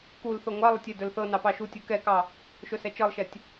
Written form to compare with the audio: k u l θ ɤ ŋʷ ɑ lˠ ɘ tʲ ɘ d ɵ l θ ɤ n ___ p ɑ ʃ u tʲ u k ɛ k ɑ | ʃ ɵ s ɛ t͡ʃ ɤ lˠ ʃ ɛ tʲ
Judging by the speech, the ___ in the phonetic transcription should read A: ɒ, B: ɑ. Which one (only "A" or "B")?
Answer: B